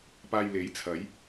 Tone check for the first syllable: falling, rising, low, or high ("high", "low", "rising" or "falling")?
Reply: low